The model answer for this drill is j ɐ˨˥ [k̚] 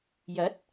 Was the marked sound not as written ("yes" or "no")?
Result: yes